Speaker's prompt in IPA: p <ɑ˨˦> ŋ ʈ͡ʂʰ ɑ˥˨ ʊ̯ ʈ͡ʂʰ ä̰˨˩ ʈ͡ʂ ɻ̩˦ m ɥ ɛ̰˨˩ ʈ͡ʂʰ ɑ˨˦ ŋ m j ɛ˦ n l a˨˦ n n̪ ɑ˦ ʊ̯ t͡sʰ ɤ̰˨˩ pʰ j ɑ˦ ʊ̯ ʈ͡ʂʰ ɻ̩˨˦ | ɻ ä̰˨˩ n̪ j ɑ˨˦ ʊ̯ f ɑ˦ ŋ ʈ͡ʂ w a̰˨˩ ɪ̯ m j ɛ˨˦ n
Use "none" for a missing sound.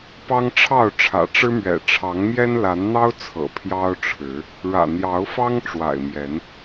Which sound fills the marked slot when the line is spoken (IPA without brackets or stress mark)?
ɑ˦